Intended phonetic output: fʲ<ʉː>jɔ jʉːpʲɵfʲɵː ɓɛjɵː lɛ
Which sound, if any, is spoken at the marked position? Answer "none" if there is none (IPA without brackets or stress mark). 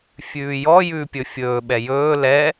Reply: ʉː